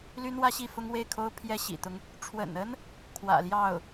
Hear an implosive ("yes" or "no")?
no